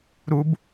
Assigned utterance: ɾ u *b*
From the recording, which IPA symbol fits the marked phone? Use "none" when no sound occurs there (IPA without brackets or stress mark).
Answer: b